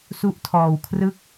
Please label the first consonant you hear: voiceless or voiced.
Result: voiceless